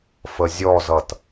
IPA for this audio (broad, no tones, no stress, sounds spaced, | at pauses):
f ə zʲ ɔ z ʌ t